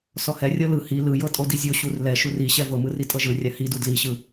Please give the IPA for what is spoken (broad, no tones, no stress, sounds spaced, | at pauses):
s ɔ h ɛ rʲ ɤ l ɯ h i l ɯ j ɤ tʼ o d i zʲ o ɕ u r l ɛ ʃ u r i ɕ ɛ v ɤ m ɯ r i tʼ ɤ ʒ ɯ rʲ a h i d u d l i ɕ ɯ